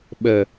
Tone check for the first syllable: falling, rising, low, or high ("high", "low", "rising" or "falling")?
low